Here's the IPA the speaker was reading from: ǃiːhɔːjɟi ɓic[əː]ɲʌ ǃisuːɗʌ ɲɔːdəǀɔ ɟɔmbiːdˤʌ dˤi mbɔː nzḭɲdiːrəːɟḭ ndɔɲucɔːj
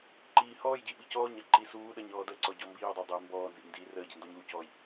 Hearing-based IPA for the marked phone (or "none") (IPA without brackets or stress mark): ɔː